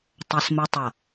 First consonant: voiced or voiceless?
voiceless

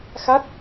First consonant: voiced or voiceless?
voiceless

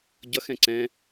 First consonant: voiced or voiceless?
voiced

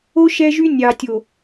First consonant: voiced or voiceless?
voiceless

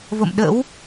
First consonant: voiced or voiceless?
voiced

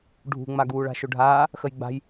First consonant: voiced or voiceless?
voiced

